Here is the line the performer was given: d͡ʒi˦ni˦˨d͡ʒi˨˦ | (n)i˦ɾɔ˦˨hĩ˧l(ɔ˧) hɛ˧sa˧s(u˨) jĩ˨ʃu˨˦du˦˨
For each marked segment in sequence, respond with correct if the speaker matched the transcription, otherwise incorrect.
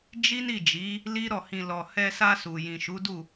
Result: incorrect, correct, correct

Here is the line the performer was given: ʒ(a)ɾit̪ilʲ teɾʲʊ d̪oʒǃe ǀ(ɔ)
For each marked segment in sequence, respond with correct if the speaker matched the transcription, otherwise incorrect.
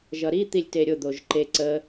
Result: incorrect, incorrect

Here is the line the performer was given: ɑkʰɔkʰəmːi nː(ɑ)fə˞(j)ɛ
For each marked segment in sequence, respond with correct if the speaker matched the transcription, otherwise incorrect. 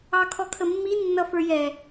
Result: incorrect, correct

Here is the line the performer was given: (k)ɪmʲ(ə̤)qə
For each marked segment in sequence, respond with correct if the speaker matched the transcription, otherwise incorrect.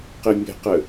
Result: incorrect, correct

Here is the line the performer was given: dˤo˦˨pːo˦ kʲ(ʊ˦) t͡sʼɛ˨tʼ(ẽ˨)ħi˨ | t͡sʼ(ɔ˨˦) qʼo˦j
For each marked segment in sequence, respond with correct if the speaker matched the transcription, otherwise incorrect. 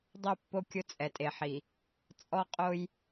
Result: correct, incorrect, incorrect

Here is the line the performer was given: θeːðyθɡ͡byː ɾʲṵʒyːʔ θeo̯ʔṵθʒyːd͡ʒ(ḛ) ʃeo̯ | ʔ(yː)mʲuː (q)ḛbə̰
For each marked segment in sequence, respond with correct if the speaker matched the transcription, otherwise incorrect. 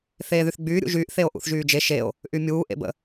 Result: incorrect, incorrect, incorrect

